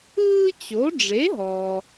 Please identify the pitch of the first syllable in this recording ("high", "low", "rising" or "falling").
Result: high